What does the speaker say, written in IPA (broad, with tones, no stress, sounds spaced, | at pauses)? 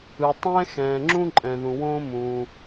ɯ˩ tˤ ɛ̃ː˥ x ɛ̃ː˩ ŋ͡ǁ ũ˥ ǃʼ ɛ̃˩ ð ũ˩ w õː˥ m ũː˩